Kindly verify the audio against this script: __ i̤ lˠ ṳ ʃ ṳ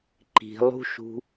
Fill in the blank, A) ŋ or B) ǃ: B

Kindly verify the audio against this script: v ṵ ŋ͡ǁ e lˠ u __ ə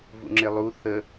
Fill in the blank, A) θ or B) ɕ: A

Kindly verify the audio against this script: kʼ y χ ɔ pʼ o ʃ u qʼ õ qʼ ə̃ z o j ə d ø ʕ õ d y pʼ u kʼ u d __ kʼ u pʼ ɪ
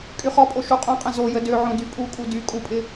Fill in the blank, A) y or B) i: A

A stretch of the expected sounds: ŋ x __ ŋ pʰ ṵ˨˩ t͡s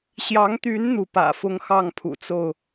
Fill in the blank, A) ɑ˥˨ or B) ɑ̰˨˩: A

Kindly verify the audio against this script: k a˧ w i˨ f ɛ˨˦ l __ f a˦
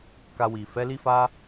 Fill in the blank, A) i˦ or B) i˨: A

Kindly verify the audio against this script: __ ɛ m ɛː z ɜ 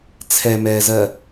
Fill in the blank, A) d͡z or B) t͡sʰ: B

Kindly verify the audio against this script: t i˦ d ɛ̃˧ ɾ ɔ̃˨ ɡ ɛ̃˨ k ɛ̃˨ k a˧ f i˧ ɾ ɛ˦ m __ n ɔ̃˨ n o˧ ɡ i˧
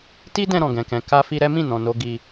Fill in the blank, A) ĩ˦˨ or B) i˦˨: A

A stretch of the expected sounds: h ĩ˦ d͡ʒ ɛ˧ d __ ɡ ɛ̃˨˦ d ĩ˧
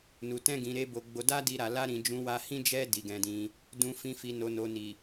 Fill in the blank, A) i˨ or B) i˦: A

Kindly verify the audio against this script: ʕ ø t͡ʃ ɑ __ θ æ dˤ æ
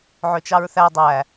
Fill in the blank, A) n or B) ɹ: B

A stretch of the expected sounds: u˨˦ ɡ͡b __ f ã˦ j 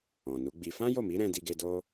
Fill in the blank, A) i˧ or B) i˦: A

